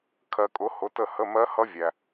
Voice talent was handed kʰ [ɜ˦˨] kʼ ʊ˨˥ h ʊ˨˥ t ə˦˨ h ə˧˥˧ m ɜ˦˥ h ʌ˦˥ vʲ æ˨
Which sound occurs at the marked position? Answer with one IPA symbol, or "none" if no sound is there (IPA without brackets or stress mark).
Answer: ɜ˨